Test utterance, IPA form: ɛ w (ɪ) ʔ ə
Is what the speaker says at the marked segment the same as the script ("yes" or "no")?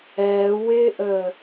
yes